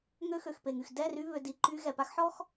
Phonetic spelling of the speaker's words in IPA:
ŋ ø˧ x ø˨ x p e˨ ŋ y˨ x d ɛ˦˨ r y˧ β ø˨ d i˨ ǃ y˧ ɣ ɛ˨ p a˦ x ħ ɔ˦ x

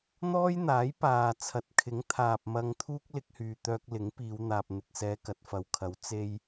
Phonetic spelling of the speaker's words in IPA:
n̪ ɔː˥ j n̪ aː˨˥ j p aː˨ t͡sʰ ɐ˨˥ t̚ kʰ ɪ˨˥ ŋ t̪ʰ aː˨ p̚ m ɐ˧ ŋ t̪ʰ uː˥ k̚ l ɪ˧ k̚ h yː˨ t̪ œː˧ k̚ l ɪ˨˥ ŋ p iː˨˧ w n̪ aː˨ p̚ n̪ ɪ˨ k̚ s ɛː˧ k ɐ˨ t̚ f ɐ˨ w kʰ ɐ˨˥ w t͡s e˧ j

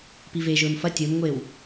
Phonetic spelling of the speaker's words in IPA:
p i v eː ʒ ɵː m f ɐ tʲ ɵː m ŋʷ eː w

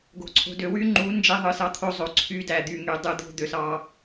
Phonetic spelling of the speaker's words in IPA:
ɡ o̤˨ ǀʰ o̤˨ d ø˨ w y˦ ŋ͡ǃ u˨˦ n d͡ʒ e˦ ðˤ ɯ˨ s ɑ˦ t̪ʰ o˦ zˤ o˨ ǀʰ y˦ d æ˨ d̪ y˨ ŋ y˨ dˤ ɯ˦ d̪ o̤˦ d̪ ø˨ s ɑ˦

